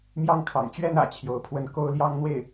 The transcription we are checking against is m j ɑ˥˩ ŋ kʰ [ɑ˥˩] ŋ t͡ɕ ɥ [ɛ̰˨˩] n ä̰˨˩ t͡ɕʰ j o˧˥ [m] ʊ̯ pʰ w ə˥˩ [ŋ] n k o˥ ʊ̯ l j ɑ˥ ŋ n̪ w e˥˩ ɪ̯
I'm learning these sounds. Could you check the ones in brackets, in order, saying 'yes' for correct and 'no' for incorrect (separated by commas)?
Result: no, no, no, no